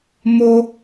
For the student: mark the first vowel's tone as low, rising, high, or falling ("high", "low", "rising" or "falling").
high